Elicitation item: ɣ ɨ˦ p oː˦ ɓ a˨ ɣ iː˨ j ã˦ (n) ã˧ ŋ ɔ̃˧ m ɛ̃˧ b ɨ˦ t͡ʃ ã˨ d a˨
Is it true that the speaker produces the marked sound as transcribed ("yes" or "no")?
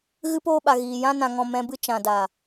yes